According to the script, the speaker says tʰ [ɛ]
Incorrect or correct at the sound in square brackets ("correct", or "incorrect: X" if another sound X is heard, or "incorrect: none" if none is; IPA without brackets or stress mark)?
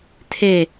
incorrect: e